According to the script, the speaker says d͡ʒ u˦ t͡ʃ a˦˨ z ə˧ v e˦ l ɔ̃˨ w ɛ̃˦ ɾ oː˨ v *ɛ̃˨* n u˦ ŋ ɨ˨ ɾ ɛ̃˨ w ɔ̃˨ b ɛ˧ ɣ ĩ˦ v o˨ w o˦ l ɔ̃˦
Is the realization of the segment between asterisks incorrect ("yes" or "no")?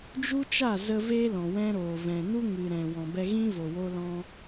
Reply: no